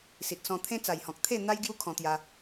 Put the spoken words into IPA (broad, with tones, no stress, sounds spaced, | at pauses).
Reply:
s i˨ t̚ s ɔ̃˧ t̪ʰ ẽ˦ t͡s a˨˩ j h ɔ̃˨ k̚ t̪ʰ e˥˧ n̪ a˦ j ɡ j u˦ kʰ ɔ̃˧ t̪ j a˧